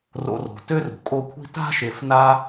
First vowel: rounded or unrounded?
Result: rounded